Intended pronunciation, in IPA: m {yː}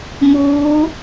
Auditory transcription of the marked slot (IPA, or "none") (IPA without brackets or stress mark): uː